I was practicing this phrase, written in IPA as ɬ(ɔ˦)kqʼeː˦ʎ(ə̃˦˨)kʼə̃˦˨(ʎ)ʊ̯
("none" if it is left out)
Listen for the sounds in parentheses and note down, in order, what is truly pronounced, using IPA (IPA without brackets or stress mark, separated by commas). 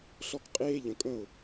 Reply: ɔ˦, ə̃˨, none